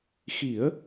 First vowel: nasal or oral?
oral